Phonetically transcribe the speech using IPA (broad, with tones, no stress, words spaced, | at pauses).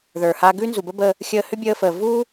ðə˞˩ha˧ ɡʉ˥nzu˩bə˥bə˧ | xʲəː˧hʏ˥bʲəː˧fəː˩ vu˥